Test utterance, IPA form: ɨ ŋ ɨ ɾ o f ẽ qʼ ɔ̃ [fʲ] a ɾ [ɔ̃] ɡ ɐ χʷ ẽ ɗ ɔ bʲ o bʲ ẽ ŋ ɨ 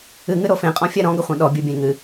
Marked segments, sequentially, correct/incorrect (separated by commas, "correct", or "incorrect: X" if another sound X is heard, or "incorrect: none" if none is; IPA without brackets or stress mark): correct, correct